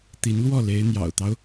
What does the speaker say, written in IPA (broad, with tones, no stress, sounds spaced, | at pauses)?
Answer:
t̪ i˧˥ n l w ɔ˥˩ l e˧˥ ɪ̯ n̪ j ɑ̰˨˩ ʊ̯ t̪ ɑ˦ ʊ̯